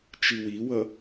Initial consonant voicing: voiceless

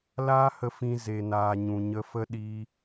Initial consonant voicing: voiced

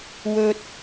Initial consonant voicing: voiced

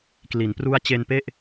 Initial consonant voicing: voiceless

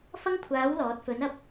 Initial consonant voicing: voiceless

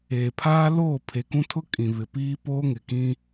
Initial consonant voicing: voiceless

